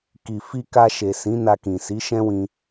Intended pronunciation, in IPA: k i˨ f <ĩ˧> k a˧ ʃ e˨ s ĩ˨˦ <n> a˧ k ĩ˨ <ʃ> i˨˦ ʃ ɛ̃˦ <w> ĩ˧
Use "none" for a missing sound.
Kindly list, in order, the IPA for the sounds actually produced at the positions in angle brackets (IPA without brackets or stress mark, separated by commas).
i˧, n, s, w